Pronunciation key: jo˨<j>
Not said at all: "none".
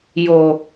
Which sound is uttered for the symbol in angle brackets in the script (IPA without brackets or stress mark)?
none